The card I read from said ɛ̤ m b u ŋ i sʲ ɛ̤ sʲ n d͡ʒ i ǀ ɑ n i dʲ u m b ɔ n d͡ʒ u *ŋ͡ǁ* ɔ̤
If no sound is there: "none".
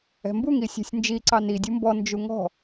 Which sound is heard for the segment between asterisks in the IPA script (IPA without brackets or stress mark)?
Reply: ŋ